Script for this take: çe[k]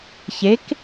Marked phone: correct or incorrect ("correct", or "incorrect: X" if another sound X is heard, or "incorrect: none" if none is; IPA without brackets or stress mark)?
correct